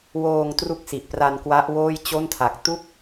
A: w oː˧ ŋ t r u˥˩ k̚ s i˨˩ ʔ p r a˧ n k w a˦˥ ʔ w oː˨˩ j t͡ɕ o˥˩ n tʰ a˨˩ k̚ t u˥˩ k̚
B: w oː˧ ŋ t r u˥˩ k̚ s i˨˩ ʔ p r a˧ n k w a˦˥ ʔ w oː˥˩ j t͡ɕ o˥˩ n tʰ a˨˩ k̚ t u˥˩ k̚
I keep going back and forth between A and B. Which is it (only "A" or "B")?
B